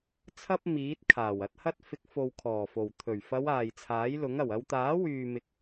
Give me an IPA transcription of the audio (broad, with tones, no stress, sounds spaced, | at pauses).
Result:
t͡sʰ ɐ˥ p̚ m iː˨˥ t̚ kʰ aː˨˩ w ɐ˨˥ t̚ h ɐ˥ t̚ f ɪ˨˥ k̚ f o˨ w kʰ ɔː˨˩ f o˨˩ w t̪ʰ ɵ˨˩ ɥ f ɐ˨˧ w aː˨ j t͡sʰ aː˨˥ j l ʊ˨˥ ŋ ɐ˨˩ w ɐ˧ w t̪ aː˨˥ w yː˨ m ɪ˨˥ k̚